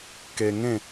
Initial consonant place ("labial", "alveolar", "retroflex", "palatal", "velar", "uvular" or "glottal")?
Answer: velar